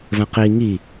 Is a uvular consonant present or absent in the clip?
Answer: present